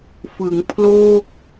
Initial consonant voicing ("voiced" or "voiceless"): voiceless